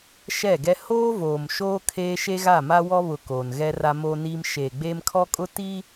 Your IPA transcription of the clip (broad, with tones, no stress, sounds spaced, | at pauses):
ʃ ɛ˦˨ ɡ ɛ˦ h oː˦ v oː˨ m ʃ oː˦ kʰ eː˦ ʃ e˦ ɣ a˦˨ m a˦ w ɔ˦ β ʊ˨ k oː˨ n ɣ ɛ˦ r a˦ m oː˦ n iː˦ m ʃ eː˨ ɡ͡b eː˦ m kʰ ɔ˦ kʼ ʊ˦ t iː˦